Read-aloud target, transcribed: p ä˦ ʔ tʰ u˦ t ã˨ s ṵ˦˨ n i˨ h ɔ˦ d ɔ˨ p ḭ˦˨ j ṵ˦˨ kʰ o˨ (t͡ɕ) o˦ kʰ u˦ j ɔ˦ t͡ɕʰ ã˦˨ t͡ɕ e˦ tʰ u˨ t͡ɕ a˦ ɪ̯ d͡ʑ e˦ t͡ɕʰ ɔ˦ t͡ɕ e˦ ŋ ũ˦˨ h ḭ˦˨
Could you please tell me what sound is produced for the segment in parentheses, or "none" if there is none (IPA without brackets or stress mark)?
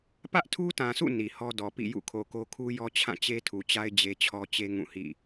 k